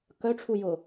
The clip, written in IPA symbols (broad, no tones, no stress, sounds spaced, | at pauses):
k œ ʈ͡ʂʰ u j ʊ